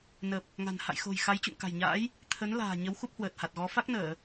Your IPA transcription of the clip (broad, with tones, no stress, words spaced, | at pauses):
nə˨˩p̚ | ŋa̤˨˩n ha̰˧˨jxo̤˨˩j xa˨˦jt͡ɕṵ˧˨ŋka̤˨˩jɲa̰ː˧˥j | t̪ʰə˨˦n la̤ː˨˩ ɲə˨˦wxu˦˥p̚hwəː˨˩t̚ ha˨˩t̚ɣɔ˨˦ fa˦˥k̚nəː˧˩˨